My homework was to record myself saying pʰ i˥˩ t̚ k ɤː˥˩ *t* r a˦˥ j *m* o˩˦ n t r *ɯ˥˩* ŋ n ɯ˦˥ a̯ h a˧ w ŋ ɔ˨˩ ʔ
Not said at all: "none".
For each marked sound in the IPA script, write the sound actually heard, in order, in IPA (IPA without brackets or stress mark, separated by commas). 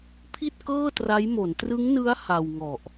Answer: t, m, ɯ˦˥